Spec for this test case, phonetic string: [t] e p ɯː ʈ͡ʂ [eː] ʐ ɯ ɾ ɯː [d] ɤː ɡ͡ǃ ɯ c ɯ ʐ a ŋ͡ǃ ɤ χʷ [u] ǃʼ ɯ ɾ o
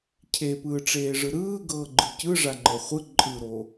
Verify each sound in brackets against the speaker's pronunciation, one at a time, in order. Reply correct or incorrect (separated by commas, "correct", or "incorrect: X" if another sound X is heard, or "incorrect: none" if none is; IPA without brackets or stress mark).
incorrect: cʰ, correct, incorrect: ɡ, incorrect: ɯ